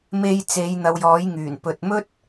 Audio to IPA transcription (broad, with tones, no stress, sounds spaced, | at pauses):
m e˧ j t͡s e˨˧ j n̪ ɐ˨˧ w j ɔː˨˥ j ŋ yː˨˩ n p ɵ˨ t̚ m ɵ˥ t̚